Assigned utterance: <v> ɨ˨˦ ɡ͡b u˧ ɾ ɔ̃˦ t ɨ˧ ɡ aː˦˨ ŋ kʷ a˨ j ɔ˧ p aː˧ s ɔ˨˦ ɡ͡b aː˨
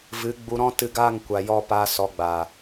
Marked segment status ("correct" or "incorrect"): correct